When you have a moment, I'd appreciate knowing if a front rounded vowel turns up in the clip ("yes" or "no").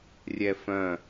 yes